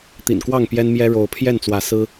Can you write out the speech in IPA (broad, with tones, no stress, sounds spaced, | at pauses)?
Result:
t̪ ḭ˨˩ n k w ɑ˥˨ ŋ p j ɛ˦ n m j ɛ˦ ɻ o˨˦ ʊ̯ pʰ j ɛ˥˨ n t͡s w ä˨˦ s ɹ̩˦